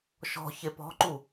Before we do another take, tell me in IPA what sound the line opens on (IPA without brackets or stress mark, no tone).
ʃ